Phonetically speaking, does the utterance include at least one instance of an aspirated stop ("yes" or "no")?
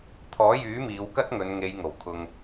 yes